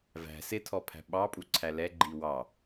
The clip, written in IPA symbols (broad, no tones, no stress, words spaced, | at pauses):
væ̤ sɪtʰɔpʰæ̤ ɓɑpʼuǀʰæ lɛɡ͡ǃi wɑ